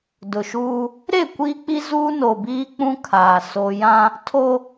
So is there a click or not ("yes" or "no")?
no